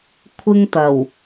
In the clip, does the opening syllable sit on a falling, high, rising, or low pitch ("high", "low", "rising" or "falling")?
high